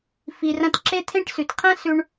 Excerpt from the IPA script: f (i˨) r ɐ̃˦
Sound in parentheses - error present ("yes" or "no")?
no